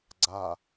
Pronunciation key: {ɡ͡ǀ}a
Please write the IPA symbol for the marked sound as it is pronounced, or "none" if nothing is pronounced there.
ɡ͡ǀ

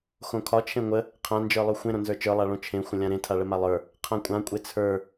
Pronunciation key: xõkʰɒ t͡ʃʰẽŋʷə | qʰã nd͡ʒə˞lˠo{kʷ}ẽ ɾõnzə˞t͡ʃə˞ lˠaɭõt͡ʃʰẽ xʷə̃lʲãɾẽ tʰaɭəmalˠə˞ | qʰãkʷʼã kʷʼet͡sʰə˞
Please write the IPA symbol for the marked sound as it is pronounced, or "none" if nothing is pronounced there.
xʷ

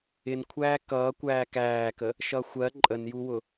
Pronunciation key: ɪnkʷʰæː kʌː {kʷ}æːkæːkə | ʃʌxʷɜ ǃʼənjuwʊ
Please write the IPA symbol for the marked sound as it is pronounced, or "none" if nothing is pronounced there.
kʷ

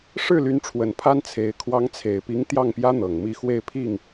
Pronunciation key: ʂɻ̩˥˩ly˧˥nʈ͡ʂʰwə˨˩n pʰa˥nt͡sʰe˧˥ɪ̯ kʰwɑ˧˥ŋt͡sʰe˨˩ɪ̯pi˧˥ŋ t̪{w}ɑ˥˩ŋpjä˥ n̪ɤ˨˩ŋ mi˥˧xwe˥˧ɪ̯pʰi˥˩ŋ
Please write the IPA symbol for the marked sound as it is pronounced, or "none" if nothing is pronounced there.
j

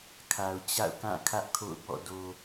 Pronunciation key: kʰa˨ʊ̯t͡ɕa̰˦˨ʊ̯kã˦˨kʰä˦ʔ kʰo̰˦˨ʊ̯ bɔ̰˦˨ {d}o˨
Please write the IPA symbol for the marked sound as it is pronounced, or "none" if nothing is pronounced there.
d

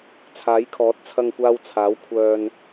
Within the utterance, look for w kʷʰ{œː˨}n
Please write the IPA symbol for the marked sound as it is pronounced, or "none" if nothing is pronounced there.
œː˨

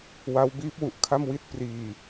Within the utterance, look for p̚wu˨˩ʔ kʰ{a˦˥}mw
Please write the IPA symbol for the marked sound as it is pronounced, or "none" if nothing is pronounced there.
a˥˩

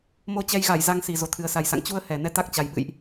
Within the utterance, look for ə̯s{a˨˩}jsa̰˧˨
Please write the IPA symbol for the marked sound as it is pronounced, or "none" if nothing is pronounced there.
a˨˩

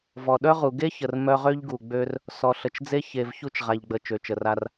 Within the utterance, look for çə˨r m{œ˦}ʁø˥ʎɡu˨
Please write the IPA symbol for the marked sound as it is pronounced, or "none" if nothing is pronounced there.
œ˦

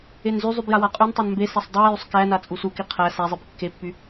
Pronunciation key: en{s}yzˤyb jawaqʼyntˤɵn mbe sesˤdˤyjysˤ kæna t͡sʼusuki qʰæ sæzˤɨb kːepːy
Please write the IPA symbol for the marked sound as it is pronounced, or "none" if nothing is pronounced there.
z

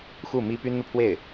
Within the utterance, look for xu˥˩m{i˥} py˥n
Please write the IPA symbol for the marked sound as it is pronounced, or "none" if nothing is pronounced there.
i˥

